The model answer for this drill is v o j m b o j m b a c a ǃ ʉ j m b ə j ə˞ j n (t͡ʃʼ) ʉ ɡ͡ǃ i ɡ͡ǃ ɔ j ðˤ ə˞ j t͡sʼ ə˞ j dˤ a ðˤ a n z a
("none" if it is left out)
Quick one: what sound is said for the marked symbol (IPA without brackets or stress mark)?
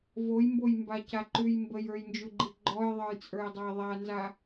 d͡ʒ